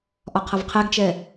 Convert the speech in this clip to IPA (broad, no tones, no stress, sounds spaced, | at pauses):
ʔ ɒ qʰ ʌ v qʰ ɛ ɡ t͡ʃ ɛ